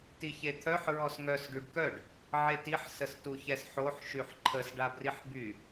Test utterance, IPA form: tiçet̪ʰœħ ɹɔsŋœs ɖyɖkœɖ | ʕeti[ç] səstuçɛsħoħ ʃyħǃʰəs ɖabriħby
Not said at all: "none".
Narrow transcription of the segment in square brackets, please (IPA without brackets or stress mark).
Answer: ħ